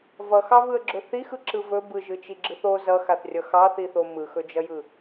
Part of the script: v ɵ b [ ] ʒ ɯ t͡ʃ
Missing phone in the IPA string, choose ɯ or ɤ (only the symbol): ɯ